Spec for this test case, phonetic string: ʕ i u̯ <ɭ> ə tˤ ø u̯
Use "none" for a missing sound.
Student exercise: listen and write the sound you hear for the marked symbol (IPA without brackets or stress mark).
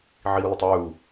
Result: l